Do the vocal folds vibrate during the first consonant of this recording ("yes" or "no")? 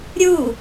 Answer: yes